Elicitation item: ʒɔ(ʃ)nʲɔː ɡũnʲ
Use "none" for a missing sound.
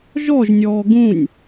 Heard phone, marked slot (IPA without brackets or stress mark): ʒ